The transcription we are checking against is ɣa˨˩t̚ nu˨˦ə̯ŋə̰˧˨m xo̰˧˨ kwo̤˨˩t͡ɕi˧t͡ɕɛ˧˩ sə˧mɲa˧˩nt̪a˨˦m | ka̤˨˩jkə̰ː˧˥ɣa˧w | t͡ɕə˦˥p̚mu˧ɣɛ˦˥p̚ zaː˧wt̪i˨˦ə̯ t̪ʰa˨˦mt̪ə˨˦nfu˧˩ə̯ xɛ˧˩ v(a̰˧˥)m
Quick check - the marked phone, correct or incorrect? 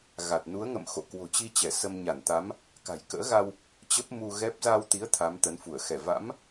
correct